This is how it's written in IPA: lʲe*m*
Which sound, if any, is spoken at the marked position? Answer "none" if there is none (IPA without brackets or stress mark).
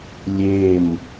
m